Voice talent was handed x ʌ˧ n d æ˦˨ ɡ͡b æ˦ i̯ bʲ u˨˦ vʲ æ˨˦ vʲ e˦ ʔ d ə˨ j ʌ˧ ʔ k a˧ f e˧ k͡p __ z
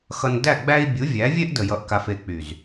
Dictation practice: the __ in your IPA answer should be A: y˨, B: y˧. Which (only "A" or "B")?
A